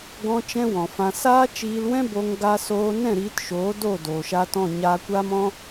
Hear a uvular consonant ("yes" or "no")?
no